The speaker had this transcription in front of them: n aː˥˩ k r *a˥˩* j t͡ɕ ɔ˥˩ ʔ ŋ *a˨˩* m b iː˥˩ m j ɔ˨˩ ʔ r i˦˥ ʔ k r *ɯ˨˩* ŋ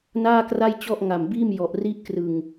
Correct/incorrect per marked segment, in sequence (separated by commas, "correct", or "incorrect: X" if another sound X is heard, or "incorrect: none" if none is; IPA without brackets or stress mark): correct, correct, correct